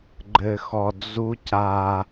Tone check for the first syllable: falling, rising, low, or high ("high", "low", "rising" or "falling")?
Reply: low